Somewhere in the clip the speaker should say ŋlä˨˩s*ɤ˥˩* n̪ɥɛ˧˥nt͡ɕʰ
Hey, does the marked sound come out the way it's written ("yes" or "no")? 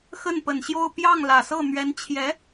yes